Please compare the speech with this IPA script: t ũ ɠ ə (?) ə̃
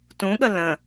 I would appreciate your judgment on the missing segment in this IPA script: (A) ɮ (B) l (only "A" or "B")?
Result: B